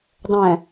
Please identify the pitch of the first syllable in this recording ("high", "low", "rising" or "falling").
low